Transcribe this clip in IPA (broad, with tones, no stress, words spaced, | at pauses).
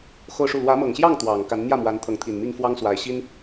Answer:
xo˥˧ʊ̯ʂu˥˩ lwä˧˥mɤ˨˩ŋɕjɑ˥˩ŋ t̪wɑ˨˩ŋ ka˧˥nn̪jä˥˩mwa˧˥n t̪ʰɤ˧˥ŋt̪ʰi˨˩n mi˥˩ŋfwɑ˥ŋ swa˧˥ɪ̯ɕi˥n